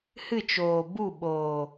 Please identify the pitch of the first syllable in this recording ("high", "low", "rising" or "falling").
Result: falling